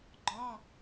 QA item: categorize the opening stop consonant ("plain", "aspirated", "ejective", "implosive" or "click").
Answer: click